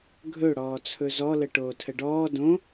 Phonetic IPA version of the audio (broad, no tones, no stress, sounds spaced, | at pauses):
ɡʱ ɵ ɽ ɔː t͡sʰ ɵ z ɔ l ə ʈ oː tʰ ə ɖ ɔː d õ